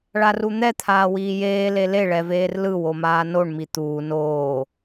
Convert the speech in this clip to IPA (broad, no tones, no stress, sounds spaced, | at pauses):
ɭ a r u n̪ ɛ t̪ʰ aː w iː j eː l e l e ɭ ɛ v eː r l ɯ w o m aː n o ɳ m i t̪ uː n oː